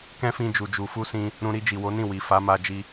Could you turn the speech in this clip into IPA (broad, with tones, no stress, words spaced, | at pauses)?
kɛ̃˦fĩ˧ d͡ʒu˨d͡ʒu˨fu˧ sĩ˧ | ɾũ˧ ɾi˧d͡ʒi˨wo˨˦nĩ˦˨ wi˨ fa˨˦ma˧d͡ʒi˧